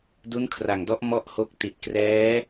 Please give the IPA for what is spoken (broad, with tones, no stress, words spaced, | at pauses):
du˦˥nkʰra˨˩ŋdɔ˦˥ʔ mɔ˥˩ʔho˦˥k̚ ti˨˩t̚ krɛː˦˥